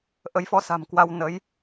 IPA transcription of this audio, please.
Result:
ʔə˨˦jfɔ˨˦sa̤˨˩mkwa˧w nə˨˦j

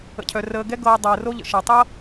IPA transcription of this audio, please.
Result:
ə̰˩cʰœ˩ rəː˨ɡɛ˥ ɡɤː˨ dˤəː˩ro˦ʎə̰˩ ʃɤ˩tˤɤ˥

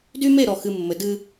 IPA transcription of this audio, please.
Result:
dy˦me˦˨ɾɔ˨xɨ˨ mːɘ˨ dɨ˦

